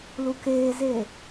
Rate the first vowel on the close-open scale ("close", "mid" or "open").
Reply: close